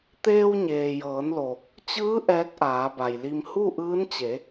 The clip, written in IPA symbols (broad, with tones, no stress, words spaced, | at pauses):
t̪eː˧wɲeː˩jɤː˩˧nlo˩ | t͡ɕɯː˧˥ ʔɛː˧˥k̚ʔaː˩˧ba˩jli˧m hu˥˨ʔɯː˧˥nt͡ɕe˩˧